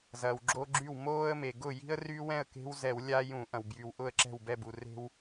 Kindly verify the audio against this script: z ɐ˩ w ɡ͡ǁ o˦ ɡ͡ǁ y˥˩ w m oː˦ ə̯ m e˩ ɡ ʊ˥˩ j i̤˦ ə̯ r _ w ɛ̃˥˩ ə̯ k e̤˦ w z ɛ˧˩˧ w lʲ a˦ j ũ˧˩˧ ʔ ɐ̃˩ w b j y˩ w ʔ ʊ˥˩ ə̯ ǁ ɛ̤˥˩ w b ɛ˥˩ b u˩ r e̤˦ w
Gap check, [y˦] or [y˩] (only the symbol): y˦